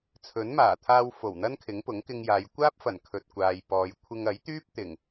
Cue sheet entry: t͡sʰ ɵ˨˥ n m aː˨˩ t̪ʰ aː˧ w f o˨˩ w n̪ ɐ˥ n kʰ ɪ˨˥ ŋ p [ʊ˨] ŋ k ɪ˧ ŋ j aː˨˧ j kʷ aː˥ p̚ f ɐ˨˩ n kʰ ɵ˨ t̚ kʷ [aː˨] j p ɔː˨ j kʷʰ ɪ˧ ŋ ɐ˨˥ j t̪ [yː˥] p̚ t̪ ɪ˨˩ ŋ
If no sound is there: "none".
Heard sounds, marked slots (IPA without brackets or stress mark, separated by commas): ʊ˨˥, aː˨, yː˥